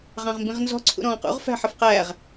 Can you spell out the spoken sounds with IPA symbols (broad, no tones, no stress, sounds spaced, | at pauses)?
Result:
ʁ ɑ̃ ʁ m b ĩ ʁ n z ɔ̤ ǀʰ ṵ ɾ ɔ̃ː q ṵ ʁ f æ̤ ħ ə f q æ ʁ